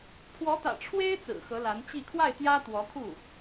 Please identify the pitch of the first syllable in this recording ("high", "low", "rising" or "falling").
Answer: rising